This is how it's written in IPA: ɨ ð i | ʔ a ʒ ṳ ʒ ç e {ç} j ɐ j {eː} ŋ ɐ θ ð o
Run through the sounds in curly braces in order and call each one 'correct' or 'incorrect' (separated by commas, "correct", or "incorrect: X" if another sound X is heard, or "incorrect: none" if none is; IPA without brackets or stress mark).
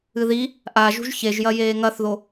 incorrect: ʒ, correct